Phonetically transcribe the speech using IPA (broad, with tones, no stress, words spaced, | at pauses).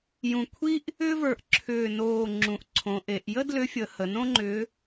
jũ˧˩kʷʰi˥ʔ | ʏː˥və˞˧˩ʔ ǁʰʏː˧˩noː˧˩ ŋ͡ǁũ˩˧ʔǀʰõ˩˧ʔe˩˧ʔ jə˥dlʏ˧˥fʲə˩˧ hə˩˧nõ˥ŋ͡ǃʏ˧˥